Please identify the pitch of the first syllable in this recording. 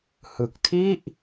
low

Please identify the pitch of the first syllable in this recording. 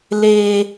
high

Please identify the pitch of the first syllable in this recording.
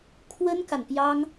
high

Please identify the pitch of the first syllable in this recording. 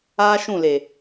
high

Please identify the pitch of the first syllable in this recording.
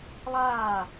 falling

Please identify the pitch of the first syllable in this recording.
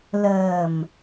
low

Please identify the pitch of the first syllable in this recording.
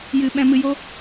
low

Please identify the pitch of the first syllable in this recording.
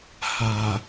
low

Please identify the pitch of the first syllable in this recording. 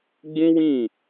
high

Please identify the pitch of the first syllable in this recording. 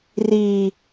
low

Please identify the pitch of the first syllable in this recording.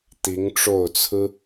rising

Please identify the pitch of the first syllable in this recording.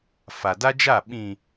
low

